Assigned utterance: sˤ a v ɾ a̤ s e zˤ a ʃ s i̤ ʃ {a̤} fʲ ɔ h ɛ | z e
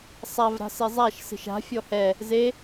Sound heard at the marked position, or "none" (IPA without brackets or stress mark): a̤